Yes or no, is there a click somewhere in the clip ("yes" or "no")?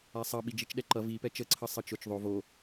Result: yes